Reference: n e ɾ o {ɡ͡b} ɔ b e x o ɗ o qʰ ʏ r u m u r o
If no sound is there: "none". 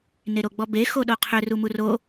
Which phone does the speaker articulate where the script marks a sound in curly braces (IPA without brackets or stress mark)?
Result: ɡ͡b